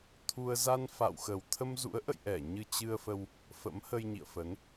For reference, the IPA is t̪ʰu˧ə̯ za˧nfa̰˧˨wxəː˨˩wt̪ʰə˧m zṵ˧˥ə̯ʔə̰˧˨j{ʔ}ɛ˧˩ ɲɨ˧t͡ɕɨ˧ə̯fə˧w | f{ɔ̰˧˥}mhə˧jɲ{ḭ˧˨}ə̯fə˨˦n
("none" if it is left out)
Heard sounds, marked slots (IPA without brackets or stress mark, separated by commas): ʔ, ə̰˧˥, ḭ˧˨